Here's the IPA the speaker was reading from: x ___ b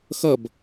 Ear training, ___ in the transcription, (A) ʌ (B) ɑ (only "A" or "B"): A